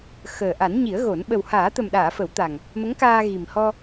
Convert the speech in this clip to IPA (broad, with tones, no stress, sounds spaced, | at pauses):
x əː˨˩ ʔ a˨˩˦ n ɲ i˨˩˦ ə̯ ɣ o˨˩˦ n ɓ ə˨˩ w h aː˨˩˦ t̪ ə˨˩ m ɗ aː˨˩˨ f ə˨˩˦ w t̪ a˨˩ ŋ | m ə˧˥ ŋ k aː˧ ɣ i˨˩ m h ɔ˧